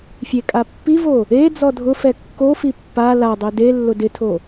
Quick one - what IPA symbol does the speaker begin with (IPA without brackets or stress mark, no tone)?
fʲ